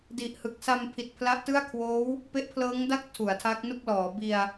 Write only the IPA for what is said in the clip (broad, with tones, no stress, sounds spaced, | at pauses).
d i˨˩ ʔ h ɯ˨˩ k̚ s a˧ m pʰ i˨˩ t̚ pʰ l a˦˥ ʔ t ɯ˥˩ a̯ kʰ w oː˦˥ w | p e˦˥ ʔ pʰ l ɤː˦˥ ŋ d a˥˩ k̚ tʰ u˩˦ a̯ tʰ a˦˥ k̚ n u˥˩ k̚ l ɔː˩˦ b i˧ a̯